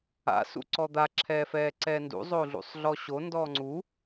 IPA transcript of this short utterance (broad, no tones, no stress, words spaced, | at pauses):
a̰ sṵǀɔd̪a ǁʰɛːfɛːǀɛːndṵ zˤoɮṵsˤɮɔɕo ndɔːŋ͡ǀu